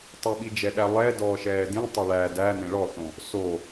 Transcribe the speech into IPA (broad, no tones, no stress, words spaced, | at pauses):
tˤəɓid͡ʒɛɗæ lˠɛdɔː ʃɛːdĩ tˤəɭæ dæ nẽɭɔθõ | so